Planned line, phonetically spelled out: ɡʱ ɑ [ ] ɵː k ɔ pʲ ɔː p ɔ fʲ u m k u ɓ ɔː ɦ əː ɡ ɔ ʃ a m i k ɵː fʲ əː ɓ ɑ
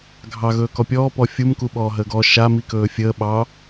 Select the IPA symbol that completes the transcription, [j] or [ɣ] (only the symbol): ɣ